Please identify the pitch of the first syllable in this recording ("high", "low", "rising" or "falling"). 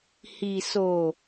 low